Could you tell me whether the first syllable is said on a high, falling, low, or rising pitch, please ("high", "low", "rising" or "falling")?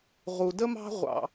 low